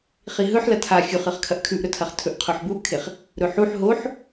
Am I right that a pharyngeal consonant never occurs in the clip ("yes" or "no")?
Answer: no